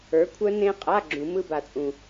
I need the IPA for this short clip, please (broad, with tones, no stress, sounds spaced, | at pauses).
ə˞˨˥ kʷʰ œ˦˥ n ẽ˦˥ qʼ a˧˥˧ ɡ͡ǁ ũ˨˩˦ m ɯ˧˥˧ b a˨ t͡sʼ ũ˨